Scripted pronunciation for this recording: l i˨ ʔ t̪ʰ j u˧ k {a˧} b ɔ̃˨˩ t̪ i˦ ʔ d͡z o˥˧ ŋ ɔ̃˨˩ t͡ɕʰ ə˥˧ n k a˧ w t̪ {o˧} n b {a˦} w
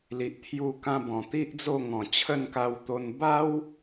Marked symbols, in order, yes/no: no, yes, yes

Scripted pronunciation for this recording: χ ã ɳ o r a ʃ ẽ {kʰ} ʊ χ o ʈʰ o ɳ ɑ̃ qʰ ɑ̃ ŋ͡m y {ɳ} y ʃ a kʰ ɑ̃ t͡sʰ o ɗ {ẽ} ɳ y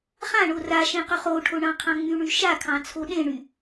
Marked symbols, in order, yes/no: no, yes, yes

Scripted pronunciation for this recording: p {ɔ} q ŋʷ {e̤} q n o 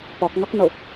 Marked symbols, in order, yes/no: yes, no

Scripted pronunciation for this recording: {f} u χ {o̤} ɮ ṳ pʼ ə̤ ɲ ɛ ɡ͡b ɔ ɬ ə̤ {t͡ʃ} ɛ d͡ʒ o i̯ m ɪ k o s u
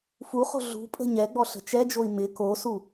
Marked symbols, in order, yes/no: yes, yes, yes

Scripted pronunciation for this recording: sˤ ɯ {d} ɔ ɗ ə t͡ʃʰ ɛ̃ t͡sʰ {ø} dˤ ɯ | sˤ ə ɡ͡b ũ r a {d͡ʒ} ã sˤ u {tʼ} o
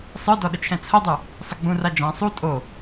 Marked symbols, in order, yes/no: yes, no, yes, yes

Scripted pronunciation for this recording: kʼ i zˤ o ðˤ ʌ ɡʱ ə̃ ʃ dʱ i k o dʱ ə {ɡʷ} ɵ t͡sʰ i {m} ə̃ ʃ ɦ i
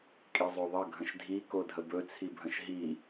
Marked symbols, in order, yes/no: no, no

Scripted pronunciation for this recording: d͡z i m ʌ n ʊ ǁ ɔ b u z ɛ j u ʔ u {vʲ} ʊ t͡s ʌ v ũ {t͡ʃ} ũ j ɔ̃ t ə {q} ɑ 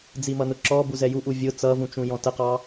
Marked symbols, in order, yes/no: yes, yes, yes

